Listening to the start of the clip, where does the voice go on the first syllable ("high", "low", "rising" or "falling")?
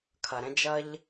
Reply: low